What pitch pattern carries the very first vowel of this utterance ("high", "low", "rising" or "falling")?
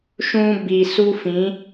high